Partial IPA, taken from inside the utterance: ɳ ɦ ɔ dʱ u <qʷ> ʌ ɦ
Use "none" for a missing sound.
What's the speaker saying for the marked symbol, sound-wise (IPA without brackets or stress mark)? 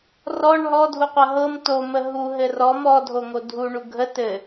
qʷ